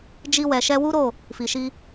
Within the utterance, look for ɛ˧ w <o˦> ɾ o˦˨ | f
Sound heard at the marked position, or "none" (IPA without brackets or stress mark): u˦